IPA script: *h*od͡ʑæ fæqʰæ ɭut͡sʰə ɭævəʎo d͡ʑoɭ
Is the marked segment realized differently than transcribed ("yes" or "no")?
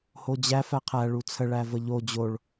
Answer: no